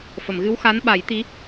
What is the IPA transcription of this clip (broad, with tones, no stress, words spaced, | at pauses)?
fə˨˩˨mɣɨ˧˥wxa˧˥n ɓa˨˩˦jt̪i˧˥